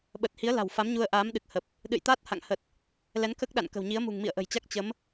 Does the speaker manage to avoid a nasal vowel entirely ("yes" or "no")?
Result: yes